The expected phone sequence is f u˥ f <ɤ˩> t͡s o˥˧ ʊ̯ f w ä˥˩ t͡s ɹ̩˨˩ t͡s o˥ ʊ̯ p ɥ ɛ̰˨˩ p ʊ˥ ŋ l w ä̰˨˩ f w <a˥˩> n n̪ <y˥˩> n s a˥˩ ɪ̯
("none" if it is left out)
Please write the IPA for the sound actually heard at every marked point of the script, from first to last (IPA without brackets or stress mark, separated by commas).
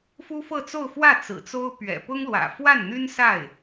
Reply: ɤ˥˧, a˥˩, y˥